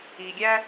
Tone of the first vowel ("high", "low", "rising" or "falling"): low